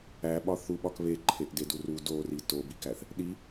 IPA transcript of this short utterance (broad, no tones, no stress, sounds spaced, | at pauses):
æ ɓ ɒ θ u ɓ ɒ k β e ǃʰ e ʔ d e d u r u d o r i t o b i k æ θ | ɗ i